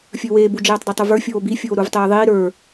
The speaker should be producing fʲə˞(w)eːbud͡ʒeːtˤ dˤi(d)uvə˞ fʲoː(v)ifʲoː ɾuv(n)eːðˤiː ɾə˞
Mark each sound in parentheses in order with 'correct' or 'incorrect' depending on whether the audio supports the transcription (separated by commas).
correct, incorrect, incorrect, incorrect